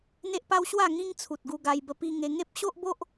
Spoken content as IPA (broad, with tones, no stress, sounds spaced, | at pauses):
n̪ e˦ ʔ p a˦ w ɕ w a˥˧ ŋ ĩ˦ ŋ t͡sʰ u˨ t̚ ɡ u˧ ɡ a˧ j b ə˧ p i˧ ŋ e˧ ŋ e˦ p̚ ɕ o˦ ʔ b o˦ ʔ